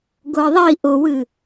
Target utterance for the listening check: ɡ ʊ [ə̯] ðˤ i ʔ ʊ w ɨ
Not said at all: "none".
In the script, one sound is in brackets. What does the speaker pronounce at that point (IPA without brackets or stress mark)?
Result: ə̯